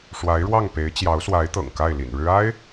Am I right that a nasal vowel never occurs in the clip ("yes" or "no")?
yes